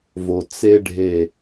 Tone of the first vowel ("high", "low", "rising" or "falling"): low